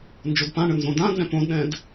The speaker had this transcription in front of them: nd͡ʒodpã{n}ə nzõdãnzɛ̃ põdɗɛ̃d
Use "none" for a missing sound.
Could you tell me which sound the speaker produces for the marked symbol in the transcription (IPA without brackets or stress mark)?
ɳ